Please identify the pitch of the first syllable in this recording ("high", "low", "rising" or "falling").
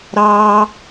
high